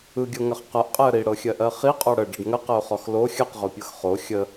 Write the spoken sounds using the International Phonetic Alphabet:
ɯ ɡʲ ɤ ŋ ɐ χ q ɐ ʔ qʼ ɛ ə̯ ɾ i ɽ ɤ xʲ ɜ ʔ ɜ χ i qʼ ɔ ɽ ə ɖ ɐ ɖ ŋ ə q ə ʊ̯ χ ɔ x l o xʲ ɐ q ʁ o pʲ ɤ x χ o xʲ ə

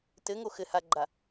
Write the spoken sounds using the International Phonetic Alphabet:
t ɘ ŋ o x ɘ h a ɡ͡ǃ a

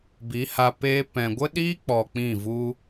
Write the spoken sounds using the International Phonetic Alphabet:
b i˨˦ h a˧ p e˦ p ɛ̃˨ ɡʷ ə˦ ɗ iː˦ k͡p ɔ˧ k͡p ĩ˦˨ v u˦

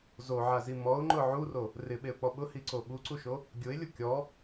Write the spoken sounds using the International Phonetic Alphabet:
z o ʕ a z i m ɔ ʊ̯ ŋ͡ǃ ʊ ʕ u r o | r ɪ ɓ e ʊ̯ k͡p ɔ ɓ ʊ h i ǀ o ɓ u ǀ u ʃ o | ɡʲ ʊ ɪ̯ lʲ ʊ kʲ ɔ

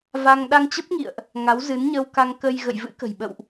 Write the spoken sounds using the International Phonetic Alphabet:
v a˧ ŋ ɗ a˧ ŋ t͡ɕ ə˦˥ p̚ ŋ ḭ˧˨ ə̯ ʔ | ŋ a˨˦ w z ɨ˨˦ n ɲ əː˧ w k a˧ ŋ k ə˧ j ɣ ə̰˧˨ j v ɨ̰˧˥ k ə̤˨˩ j ɓ ə̰˧˨ w ʔ

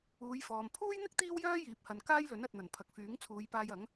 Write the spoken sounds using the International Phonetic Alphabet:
uː˨˧ j f ɔː˨ m pʰ uː˥ j n̪ ɪ˥ k̚ t̪ iː˥ w j œː˥ j iː˨˥ p̚ h ɐ˨ n k aː˥ j l ɵ˨˥ n ɐ˨ t̚ n̪ ɐ˨˩ n pʰ ɐ˨ k̚ f yː˨˥ ŋ t͡sʰ uː˨˧ j p aː˧ j ɐ˨˥ ŋ

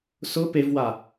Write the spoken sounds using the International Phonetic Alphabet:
s ʊ p e v w a

